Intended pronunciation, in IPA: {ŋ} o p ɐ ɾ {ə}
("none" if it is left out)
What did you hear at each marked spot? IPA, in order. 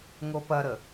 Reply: ŋ, ə

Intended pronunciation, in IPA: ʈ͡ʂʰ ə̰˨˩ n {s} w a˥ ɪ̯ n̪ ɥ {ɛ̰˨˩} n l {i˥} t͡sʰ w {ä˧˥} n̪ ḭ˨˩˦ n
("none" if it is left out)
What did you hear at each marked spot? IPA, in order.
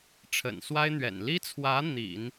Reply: s, ɛ̰˨˩, i˥, ä˧˥

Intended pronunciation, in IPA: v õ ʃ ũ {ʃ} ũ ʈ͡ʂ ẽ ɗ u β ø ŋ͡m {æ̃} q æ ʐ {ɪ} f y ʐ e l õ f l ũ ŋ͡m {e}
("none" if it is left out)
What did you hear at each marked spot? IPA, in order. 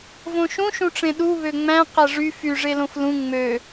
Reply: ʃ, æ̃, y, ø

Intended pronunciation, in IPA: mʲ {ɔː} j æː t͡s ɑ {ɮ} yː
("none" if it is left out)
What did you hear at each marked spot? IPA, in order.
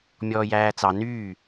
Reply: ɔː, n

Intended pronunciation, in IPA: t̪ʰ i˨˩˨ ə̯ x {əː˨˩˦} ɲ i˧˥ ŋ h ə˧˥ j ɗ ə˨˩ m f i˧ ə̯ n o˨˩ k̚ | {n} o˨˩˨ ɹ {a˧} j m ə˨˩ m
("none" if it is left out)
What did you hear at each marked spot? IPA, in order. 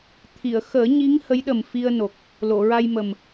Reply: əː˨˩˦, l, a˧

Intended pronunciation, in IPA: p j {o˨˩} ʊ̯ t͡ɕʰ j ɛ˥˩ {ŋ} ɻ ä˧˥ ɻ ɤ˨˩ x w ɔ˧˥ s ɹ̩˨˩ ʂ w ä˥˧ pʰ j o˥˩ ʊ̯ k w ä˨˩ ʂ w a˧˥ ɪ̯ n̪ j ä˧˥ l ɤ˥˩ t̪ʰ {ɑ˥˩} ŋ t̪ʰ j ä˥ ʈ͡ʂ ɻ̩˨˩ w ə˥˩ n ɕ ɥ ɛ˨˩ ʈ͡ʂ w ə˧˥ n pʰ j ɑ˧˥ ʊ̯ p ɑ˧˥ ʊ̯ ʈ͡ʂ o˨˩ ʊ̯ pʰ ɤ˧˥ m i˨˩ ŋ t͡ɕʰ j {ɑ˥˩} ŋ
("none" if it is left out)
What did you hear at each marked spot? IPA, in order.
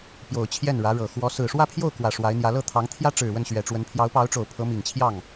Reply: o˨˩, n, ɑ˧˥, ɑ˥˩

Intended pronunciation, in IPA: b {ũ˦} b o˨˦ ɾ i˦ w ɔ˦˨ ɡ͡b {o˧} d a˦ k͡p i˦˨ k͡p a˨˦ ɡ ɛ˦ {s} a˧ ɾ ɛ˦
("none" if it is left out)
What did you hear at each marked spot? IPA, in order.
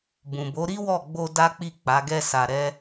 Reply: ũ˨, o˧, s

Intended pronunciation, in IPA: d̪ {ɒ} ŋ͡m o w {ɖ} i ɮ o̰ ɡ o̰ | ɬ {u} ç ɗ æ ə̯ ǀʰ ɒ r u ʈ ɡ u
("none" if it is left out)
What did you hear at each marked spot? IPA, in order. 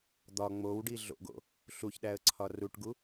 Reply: ɒ, ɖ, u

